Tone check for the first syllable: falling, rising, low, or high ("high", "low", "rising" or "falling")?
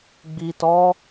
low